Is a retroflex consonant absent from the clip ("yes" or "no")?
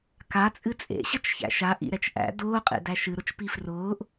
yes